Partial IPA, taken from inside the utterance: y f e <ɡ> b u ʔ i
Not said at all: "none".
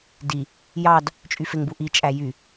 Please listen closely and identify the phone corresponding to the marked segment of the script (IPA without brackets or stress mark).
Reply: ŋ